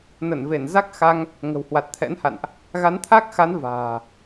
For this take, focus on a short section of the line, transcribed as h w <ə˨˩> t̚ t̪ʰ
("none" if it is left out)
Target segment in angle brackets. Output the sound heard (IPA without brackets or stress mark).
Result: a˨˩